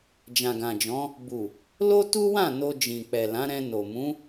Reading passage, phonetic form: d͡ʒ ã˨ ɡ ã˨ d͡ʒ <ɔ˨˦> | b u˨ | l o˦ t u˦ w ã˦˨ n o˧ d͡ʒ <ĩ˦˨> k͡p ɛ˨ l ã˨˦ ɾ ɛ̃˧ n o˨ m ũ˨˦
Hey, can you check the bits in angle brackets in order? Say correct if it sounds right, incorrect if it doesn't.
incorrect, incorrect

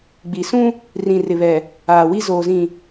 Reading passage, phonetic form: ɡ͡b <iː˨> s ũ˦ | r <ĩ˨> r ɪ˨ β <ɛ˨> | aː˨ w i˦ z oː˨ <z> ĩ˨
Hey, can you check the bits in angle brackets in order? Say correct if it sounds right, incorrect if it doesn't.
incorrect, correct, correct, correct

